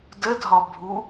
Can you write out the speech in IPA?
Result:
dədʱɒbʱu

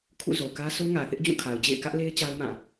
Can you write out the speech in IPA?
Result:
kʰṵ˦˨zo˨kä˦ so˦ŋä˨θɪ˦ʔ d͡ʑũ˦˨kʰa˨ʊ̯ d͡ʑḛ˦˨ɪ̯kä˦ʔle˦ɪ̯ t͡ɕa˦ʊ̯mã˦˨

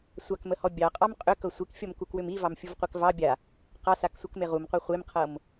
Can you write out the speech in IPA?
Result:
sʷakməhɔ bʲɑqʼɑm qʼʏkɤ sʷikfʲɔmkukwʏm ivɑmfʲuvqʷek vɑ bʲa | qɑsaksʷɤkme ʁumqʷe χʷemqʰɤm

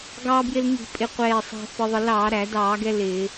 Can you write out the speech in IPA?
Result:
ɡɑː˧bjɪ˧lŋi̤˧˩˧pʼɪ˧˩ qʷɛː˧˩sˤæ̤˧ fə˧ðˤə˧ lɑː˧˩˧ɾæ˧˩˧dɑː˧˩˧ɡɛ˧ lɪː˧˩˧

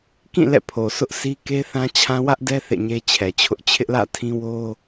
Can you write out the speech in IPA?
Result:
kĩ˦˨ lɛ̰˦˨pʰo˨sʰʊ˦ʔsi˦ ke˦θã˦t͡ɕʰã˦ wä˦ʔdɛ˦ θḛ˦˨ɲe˦t͡ɕʰɛ˨t͡ɕʰʊ˦ʔ t͡ɕʰɪ˦ʔlä̰˦˨tʰĩ˦ wo˦

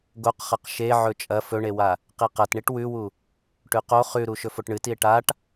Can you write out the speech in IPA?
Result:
ɡoqχɐq ʃeʕɵ t͡ʃʼɐ fɵɳewa | qiqɐtɳiʈ wʉwu | ʈʉqo χʉɾu ʃɵfoʈɳɨtie̯ ʈaʈ

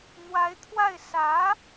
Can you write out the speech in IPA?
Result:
n̪wa˧˥ɪ̯t̪ʰwa˥˩ɪ̯ sä˧˥

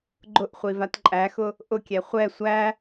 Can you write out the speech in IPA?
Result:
ɡ͡ǃʊʔ χʷivatǃʼæxʊ | ʔʊkʲɛ χʷɛ sʷæ

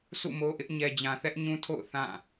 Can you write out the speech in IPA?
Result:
sʰṵ˦˨mo˦ʔɪ˦ʔ ɲɛ˨d͡ʑã˨θɛ˦ʔ ɲũ˦tʰo̰˦˨ʊ̯ θã˦˨

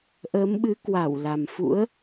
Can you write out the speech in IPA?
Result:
ʔəː˨˦mɓɨ˨˦kwa˧˩wla˨˩m fṵ˧˥ə̯

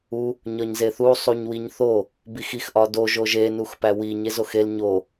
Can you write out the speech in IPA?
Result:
u | ɲɒɲzeθu sˤuɲwiɲθo | bixix ʔɒdo ʒoʒe nuxpæwiɲ ezoxel ɲo

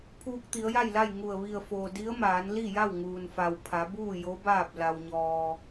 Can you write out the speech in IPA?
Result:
pʰuː˧k̚t̪i˩˧ə̯ja˥˨jla˥˨j ŋu˧˩ə̯ ʋi˧˩ə̯foː˩ di˧˥ə̯maː˩˧n li˥˨ja˥˨w ŋuː˩nfa˩wpʰa˩˧buː˥˨ jo˧˥baː˥˨p̚ la˧wɲɔː˧

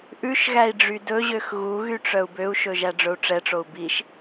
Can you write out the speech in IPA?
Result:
ʔʉʃɣæi̯ ɖ͡ʐydɵʑøx ɣuɣy ʈ͡ʂœu̯bøu̯ʃɵ ʒæɖ͡ʐɵu̯ʈ͡ʂɛʈ͡ʂou̯ biʃ

